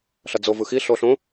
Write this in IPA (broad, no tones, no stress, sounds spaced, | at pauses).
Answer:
ɬ ʌ d͡z o v ɯ x i ɬ o ɬ õ